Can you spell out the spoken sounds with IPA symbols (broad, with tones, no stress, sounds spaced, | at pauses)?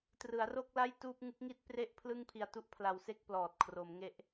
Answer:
t r ɯ˩˦ a̯ r o˥˩ k̚ l a˥˩ j t uː˥˩ p̚ ŋ ɯ˦˥ k̚ ŋ i˥˩ t̚ p r e˥˩ ʔ pʰ l ɯ˥˩ ŋ pʰ i˧ a̯ t u˥˩ ʔ pʰ l a˧ w s e˥˩ k̚ p l ɔː˨˩ t̚ kʰ r o˩˦ m ŋ e˦˥ ʔ